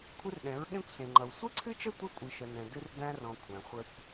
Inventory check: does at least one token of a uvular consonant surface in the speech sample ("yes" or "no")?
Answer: yes